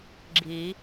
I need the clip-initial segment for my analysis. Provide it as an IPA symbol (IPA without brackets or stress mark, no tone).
ɡ͡ǁ